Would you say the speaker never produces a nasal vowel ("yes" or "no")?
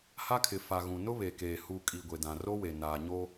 no